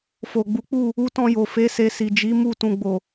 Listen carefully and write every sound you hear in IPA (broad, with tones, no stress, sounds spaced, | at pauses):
f o˨ ɡ͡b u˨˦ k͡p u˦˨ | u˧ t ɔ̃˧ j o˨ f e˨˦ s e˧ s i˨ d͡ʒ i˨˦ m u˦˨ t ũ˨ ɡ͡b o˨